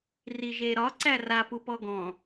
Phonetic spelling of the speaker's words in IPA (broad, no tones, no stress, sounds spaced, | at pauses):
r i ʒ e ɾ ɒ ǀ æ r a p u p ɔ ɡ ɔ̃